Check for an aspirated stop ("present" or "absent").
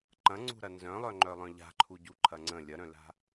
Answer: present